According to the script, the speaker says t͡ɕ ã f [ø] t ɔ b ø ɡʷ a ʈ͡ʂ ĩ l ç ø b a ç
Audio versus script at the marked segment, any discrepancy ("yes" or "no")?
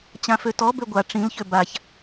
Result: no